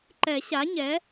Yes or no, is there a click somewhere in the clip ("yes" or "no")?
yes